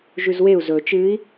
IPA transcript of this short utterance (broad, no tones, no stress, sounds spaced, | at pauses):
ʒ ʉ z w e u̯ z ɵ t͡ʃ ɨː i̯